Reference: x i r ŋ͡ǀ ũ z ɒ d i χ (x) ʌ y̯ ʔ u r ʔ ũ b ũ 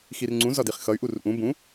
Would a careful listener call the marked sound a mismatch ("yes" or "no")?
no